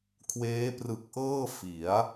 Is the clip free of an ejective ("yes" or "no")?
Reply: yes